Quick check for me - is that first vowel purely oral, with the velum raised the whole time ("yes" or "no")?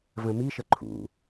no